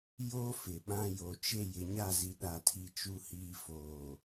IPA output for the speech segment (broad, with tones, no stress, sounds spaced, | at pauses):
j o˦ f ɪ˨ ɓ ã˦ j o˨ t͡ʃ e˦˨ j ɪ˨ ɲ a˦˨ z i˨ ɗ a˨ tʰ i˨ t͡ʃ u˨ h iː˨ f oː˨